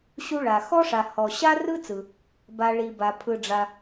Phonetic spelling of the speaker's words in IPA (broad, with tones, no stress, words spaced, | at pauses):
ɕu˥ɭa˧ xɔ˥ʂa˧ hɔ˧ɕa˥rɯ˥t͡sɯ˧ | ba˥ ɭi˥ba˥ pʰɯ˥ɖ͡ʐa˥